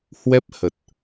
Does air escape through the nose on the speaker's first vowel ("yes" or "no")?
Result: no